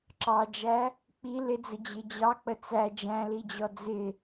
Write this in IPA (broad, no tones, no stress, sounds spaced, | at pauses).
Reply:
ǁ ɑ d͡ʒ æ | k͡p i l ɪ d͡z ə d͡ʑ ɪ d͡ʑ ɑ k͡p ə t͡s æ d͡ʒ æ̃ l i d͡ʑ ɔ d͡z ɪ